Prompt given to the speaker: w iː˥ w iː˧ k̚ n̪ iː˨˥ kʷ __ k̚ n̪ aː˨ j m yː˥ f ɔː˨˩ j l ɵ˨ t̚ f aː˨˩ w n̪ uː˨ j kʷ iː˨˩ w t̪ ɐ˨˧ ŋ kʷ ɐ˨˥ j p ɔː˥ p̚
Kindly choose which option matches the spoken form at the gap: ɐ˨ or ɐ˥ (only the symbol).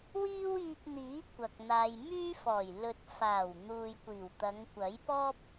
ɐ˨